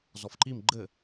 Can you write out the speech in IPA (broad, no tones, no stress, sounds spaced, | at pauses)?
z ɔ f ǃ i m ɡ͡ǃ ɘ